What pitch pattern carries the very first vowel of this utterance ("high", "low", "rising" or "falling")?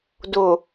low